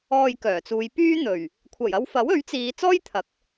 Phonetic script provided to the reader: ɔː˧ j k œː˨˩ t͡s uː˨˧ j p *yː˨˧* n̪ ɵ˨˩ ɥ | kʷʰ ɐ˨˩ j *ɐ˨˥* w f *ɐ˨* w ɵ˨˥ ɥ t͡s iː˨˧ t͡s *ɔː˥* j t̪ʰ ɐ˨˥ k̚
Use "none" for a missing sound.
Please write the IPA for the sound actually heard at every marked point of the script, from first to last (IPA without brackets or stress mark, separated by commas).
yː˥, ɐ˧, ɐ˨˥, ɔː˥